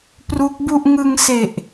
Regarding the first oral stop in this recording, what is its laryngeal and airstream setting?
plain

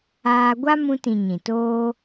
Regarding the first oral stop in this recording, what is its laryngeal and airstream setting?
plain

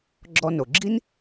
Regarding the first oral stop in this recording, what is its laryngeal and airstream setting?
click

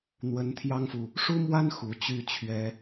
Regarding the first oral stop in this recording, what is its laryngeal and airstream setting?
aspirated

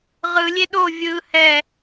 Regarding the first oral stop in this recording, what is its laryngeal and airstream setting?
implosive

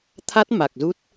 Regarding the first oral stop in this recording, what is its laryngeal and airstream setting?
aspirated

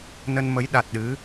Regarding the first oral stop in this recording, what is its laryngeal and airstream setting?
implosive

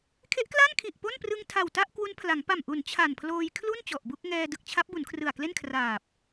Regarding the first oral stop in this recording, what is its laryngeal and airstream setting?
aspirated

